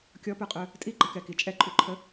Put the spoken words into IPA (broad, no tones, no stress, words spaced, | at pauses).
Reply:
kʲɔpœqʼœ | tʼiɡ͡ǃəkɛki t͡ʃʼɛǃʼyǃʰə